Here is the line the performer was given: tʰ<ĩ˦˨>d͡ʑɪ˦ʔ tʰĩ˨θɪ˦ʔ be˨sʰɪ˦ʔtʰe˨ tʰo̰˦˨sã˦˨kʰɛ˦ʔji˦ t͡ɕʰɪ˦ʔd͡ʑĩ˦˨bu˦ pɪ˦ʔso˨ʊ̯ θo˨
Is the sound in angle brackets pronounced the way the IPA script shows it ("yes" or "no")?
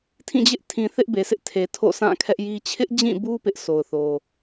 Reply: yes